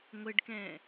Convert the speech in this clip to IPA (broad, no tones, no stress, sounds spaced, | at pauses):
ŋʷ ɘ ɖ k ɛ̃